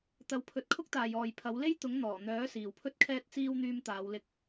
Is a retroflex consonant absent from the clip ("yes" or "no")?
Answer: yes